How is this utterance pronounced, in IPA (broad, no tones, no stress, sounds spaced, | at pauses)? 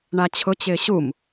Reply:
ɳ a t͡ɕʰ ʊ t͡ɕ ɪː ɕ u m